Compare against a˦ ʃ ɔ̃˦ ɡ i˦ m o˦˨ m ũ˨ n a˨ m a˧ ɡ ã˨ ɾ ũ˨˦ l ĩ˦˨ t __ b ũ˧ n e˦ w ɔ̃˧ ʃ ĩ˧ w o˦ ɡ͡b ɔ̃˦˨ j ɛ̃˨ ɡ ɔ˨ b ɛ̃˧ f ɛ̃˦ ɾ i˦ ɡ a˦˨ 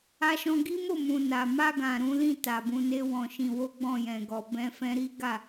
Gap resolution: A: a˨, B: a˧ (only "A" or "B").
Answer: A